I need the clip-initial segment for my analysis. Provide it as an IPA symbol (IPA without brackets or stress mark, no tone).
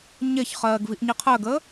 ɲ